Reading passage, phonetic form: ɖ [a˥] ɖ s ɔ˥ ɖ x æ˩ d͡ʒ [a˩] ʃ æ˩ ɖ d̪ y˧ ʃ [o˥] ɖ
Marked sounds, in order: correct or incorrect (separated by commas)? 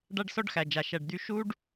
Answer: correct, correct, incorrect